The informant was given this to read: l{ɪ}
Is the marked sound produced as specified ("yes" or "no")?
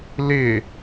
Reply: yes